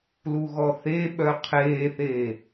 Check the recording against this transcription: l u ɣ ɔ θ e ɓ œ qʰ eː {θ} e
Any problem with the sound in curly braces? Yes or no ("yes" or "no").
no